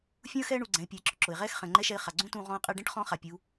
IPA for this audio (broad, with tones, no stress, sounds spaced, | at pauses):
fʲ ũ˥ ə̯ x ɛː˥ ɳ u˩˧ ɡ͡ǀ ɛ̃˩˧ ɪ̯ pʲ ʊ˩˧ ɪ̯ ǁ ʊ˩ ǁ ʊ˩ ɪ̯ ʁ ɛː˥ x χ ɛ̃˩ ŋ͡ǃ ɛ˧˥ ʃ ɛ˧ ɪ̯ χ a˩ ɡ͡ǀ ũ˥ t ũː˧ ʁ ɔ̃˧ ə̯ qʼ ɛ˧ ɖ ɛ̃˥ ʈ χ ɔ̃˧˥ χ a˩ pʲ u˩˧